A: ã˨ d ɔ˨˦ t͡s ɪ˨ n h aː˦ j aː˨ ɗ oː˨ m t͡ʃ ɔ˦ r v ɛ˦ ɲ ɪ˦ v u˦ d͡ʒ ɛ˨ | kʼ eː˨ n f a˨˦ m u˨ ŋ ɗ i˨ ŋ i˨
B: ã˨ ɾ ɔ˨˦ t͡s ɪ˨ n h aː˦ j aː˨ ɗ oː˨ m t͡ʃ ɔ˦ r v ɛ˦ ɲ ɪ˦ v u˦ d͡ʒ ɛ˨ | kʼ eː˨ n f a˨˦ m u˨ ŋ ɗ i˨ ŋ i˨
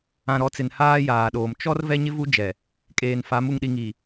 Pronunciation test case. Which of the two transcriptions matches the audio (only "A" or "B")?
B